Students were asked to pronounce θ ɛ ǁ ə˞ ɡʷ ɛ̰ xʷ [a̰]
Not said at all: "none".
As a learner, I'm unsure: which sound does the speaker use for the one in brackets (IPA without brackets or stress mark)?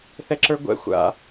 a̰